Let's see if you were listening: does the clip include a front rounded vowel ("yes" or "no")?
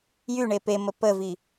yes